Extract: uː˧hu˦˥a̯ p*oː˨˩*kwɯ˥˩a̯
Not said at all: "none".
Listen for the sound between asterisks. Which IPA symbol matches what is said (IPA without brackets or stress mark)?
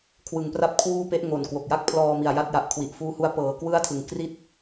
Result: ɤː˨˩